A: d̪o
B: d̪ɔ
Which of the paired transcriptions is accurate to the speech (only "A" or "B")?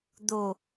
A